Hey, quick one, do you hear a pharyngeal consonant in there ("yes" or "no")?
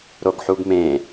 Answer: yes